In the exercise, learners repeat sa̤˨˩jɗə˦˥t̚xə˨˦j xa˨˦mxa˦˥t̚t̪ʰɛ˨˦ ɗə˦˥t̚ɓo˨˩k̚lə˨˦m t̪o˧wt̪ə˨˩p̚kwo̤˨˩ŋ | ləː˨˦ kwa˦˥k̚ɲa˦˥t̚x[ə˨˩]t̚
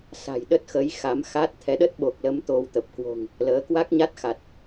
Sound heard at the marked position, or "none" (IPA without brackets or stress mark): a˨˩